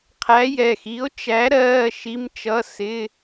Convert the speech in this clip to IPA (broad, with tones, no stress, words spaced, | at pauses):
qʰæ˨˥jɛ˩˧˩xi˨˥o̯t͡ʃæ˨˥ ɾɜː˧˥˧ʃi˧˥˧mt͡ʃʌ˧˥˧sɪ˧˥˧